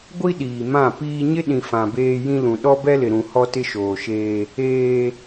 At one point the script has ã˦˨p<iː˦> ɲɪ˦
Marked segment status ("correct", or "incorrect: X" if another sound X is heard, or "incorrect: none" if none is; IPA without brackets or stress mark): correct